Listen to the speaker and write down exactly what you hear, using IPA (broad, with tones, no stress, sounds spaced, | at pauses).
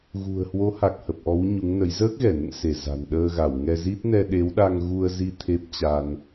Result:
ɣ ṳ˨˩ ə̯ h w o˨˦ h a˨˩ k̚ h ə˨˩ p̚ ʔ ɔ˨˦ w ɲ u˨˦ ŋ n ə˨˦ j z əː˦˥ k̚ ɣ ɛ˧˩ n ə̰˧˨ n s e˧˩ z a̤˨˩ n ɗ əː˧ ɣ a˧˩ w ŋ ɛ˧ z i˦˥ t̚ n ɛ˧ ɗ e˨˦ w ɗ a˧ ŋ ɣ u˧ ə̯ z i˧ t̪ʰ e˦˥ p̚ t͡ɕ a˧ n